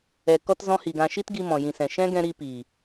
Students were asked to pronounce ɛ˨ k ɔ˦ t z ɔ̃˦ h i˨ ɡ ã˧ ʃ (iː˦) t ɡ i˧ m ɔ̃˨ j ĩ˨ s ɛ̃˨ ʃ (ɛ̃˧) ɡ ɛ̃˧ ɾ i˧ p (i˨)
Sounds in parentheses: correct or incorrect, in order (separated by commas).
incorrect, incorrect, incorrect